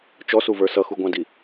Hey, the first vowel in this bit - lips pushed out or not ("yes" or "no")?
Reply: yes